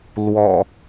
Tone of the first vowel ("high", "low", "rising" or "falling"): low